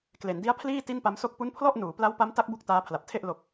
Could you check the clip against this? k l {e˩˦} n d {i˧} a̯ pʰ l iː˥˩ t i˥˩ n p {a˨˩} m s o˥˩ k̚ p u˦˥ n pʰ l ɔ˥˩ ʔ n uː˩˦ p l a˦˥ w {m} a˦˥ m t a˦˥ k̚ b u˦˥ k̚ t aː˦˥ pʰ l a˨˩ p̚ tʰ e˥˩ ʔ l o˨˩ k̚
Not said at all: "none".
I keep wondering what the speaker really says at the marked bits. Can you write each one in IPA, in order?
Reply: e˩˦, i˦˥, a˦˥, p

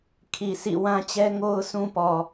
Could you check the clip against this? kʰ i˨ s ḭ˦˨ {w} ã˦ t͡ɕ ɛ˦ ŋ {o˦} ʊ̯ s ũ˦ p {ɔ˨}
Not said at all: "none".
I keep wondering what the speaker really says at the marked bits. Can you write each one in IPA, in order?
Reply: w, o˦, ɔ˨

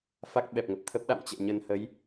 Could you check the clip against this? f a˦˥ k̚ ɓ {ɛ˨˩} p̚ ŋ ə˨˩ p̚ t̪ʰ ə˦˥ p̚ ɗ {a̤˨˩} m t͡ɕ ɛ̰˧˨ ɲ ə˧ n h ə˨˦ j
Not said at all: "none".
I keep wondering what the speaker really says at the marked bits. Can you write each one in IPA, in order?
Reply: ɛ˨˩, a̰˧˨

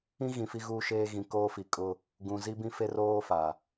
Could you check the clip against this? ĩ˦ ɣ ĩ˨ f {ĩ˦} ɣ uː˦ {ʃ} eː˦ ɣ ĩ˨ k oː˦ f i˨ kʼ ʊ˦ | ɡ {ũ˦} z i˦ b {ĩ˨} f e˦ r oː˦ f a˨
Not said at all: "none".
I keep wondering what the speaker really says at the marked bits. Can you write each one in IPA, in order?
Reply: i˦, ʃ, ũ˨, ĩ˦

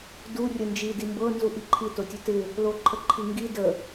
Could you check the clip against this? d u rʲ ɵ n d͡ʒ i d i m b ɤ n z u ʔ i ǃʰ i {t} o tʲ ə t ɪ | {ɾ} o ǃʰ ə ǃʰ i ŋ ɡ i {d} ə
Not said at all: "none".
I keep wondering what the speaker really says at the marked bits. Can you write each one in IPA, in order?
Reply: t, l, d

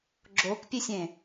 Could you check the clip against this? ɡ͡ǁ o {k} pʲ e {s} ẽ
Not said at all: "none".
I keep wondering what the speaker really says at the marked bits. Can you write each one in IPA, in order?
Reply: k, sʲ

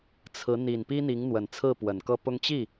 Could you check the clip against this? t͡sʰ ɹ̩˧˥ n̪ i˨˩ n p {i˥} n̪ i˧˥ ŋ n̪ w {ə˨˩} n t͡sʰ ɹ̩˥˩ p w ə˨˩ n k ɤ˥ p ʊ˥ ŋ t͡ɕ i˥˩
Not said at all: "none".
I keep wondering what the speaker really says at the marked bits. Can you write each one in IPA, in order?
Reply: i˥, ə˨˩

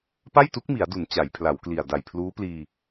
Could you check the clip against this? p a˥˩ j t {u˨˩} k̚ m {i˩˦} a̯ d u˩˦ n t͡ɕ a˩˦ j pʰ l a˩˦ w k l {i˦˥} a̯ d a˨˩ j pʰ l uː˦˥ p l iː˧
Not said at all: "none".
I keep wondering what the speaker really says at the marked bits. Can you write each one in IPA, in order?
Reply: u˦˥, i˩˦, i˨˩

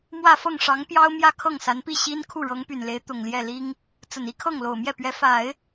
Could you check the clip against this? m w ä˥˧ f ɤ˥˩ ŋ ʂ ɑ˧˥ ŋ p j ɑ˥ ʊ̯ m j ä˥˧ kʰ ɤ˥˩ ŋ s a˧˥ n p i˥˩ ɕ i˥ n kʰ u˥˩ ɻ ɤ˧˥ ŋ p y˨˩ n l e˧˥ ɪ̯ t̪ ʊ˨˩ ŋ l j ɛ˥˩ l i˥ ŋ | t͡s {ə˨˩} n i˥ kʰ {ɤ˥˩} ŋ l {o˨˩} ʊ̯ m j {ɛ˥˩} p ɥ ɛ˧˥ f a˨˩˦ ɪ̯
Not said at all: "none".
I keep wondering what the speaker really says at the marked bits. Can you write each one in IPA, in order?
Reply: ə˨˩, ɤ˥˩, o˨˩, ɛ˥˩

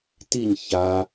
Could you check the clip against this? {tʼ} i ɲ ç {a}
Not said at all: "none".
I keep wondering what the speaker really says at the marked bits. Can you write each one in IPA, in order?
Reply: t, a

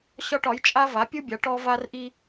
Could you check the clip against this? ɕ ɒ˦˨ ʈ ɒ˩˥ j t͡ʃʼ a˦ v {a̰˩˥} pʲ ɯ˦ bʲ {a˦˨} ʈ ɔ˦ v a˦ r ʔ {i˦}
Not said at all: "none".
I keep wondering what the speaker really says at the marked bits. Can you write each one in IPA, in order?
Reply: a˩˥, a˩˥, i˦

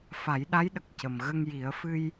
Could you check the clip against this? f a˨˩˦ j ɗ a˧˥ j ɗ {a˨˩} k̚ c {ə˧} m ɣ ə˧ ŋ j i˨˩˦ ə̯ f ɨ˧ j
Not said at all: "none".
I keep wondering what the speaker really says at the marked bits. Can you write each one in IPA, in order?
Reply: ə˨˩, ə˨˩

